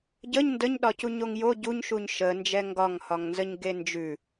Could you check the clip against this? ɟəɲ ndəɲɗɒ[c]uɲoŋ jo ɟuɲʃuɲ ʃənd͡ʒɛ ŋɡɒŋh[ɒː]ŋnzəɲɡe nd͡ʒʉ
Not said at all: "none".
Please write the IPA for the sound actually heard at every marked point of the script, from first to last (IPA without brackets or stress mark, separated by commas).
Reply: c, ɒ